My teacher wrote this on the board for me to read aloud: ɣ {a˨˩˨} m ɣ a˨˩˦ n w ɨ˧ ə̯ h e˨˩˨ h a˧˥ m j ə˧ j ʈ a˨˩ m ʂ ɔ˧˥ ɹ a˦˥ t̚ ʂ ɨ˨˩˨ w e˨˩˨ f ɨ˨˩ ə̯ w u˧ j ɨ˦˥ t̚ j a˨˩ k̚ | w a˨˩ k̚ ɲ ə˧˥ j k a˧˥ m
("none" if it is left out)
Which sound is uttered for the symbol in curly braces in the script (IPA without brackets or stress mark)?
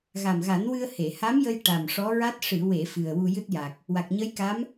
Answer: a˨˩